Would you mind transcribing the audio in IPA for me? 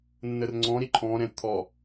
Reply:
nː ə r ŋ͡ǀ ɔ̃ ɾ i ǃʰ ɔ̃ ɾ ɛ̃ t̪ʰ ɔ

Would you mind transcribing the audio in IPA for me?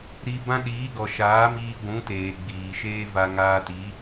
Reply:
ɾ i˧ b ã˦ ɗ iː˨˦ ɡ ɔ˨ ʃ aː˨˦ m iː˧ ɡʷ ũ˨˦ t eː˨ ɡ͡b iː˨ ʃ eː˦ v a˧ ŋ aː˧ t i˨˦

